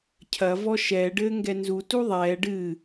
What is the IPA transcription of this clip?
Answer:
cʰ ɐ v ɔ ʃ ɛ ɖ ɘː ŋ ɡ ɛ n z u t u ðˤ ɛː ɖ ɨ

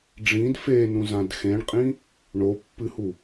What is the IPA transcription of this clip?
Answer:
ɖ͡ʐ ĩ d f e n ũ z ã d x ẽ ɳ qʼ ĩ | ɳ o pː ɨ h u

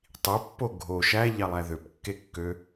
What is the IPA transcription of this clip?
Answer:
tˤ i pː o ɡʱ o ʃ æ ʎ ɑ lˠ æ ð ø p kː e kː ø

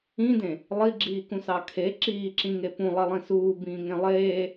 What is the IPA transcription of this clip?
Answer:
ĩ d ẽ | lˠ i ɡ͡ǁ iː k ũ s ɑ kʰ e ǁ iː ǁ ĩ ŋ e p ũ lˠ e lˠ ĩ s uː b ĩː ŋ ẽ lˠ eː

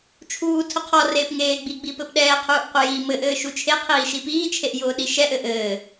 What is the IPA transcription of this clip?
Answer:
t͡ʃʰ uː tʰ ʊ qʰ ɔ r eː p ŋ eː ɡ͡b i ɡ͡b i p ɘ p ɗ ɛː qʰ uː ʔ qʷ ə j iː m ɘ ʔ ɘː ʃ u t͡ʃʰ e qʰ iː ʃ i p iː t͡ʃʰ e ʔ j ʊː ɗ i ʃ ɛ ʔ ɘ ʔ ɘː

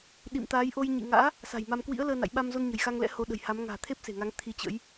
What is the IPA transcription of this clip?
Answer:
ɗ ḭ˧˨ m t̪ aː˨˦ j ʔ o˧ j ɲ ḭ˧˨ ŋ a̰ː˧˥ | s a̤˨˩ j m a˧ m k w ḭ˧˥ ə̯ l əː˧ n a̰˧˨ j ɓ a˧ m z o˧ n ɲ ə̤˨˩ j x a˧ ŋ l ɛ̰˧˥ h o˨˦ ɗ ə̤˨˩ j h a˨˦ m ŋ a̤ː˨˩ t̪ʰ e˦˥ p̚ s e̤˨˩ ŋ a˨˦ ŋ t̪ʰ i˨˦ t͡ɕ ə̰˧˥ j

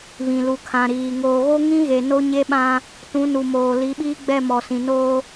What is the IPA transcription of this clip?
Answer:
β ĩ˨ l u˨ kʰ ã˨ ɾ iː˨ ŋ oː˨ ɣ o˦ ŋ ĩ˦ ɣ e˨ n o˦ ɲ e˦ ɓ ã˦ | t ũ˨˦ n u˨ m oː˨ l i˨˦ ɓ iː˦ ɡ͡b ɛ˦˨ m ɔ˨ s ĩ˨ n oː˦

